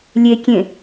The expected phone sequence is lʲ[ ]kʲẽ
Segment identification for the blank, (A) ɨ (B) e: B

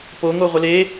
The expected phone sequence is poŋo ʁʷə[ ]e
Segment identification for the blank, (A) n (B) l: B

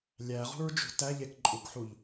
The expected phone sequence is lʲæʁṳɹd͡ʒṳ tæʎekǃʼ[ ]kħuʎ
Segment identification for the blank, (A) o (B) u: B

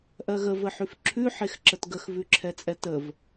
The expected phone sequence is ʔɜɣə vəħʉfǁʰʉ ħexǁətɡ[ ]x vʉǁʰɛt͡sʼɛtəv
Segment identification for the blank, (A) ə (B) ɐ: A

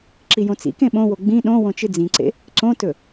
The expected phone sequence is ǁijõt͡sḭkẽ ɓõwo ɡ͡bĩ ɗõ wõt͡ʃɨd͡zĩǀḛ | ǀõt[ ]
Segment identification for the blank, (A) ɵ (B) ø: A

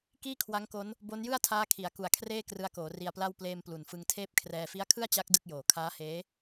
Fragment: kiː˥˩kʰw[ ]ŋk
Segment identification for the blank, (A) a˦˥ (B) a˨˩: A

